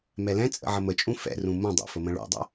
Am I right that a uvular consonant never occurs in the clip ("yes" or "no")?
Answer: yes